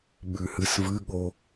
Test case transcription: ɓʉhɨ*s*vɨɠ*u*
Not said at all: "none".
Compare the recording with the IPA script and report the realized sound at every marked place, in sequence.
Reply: s, o

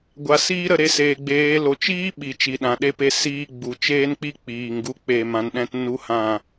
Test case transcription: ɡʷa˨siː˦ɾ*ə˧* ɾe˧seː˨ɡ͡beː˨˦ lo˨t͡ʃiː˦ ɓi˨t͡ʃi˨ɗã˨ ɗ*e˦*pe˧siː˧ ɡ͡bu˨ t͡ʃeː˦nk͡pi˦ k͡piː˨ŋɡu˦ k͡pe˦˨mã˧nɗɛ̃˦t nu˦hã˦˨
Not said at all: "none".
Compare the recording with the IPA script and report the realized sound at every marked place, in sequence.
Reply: ə˧, e˧

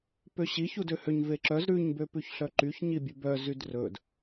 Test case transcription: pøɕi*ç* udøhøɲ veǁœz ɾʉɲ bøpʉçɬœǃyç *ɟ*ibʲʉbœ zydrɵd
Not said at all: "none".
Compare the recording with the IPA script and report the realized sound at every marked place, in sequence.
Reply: ç, ɲ

